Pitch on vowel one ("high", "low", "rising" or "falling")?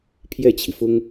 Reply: falling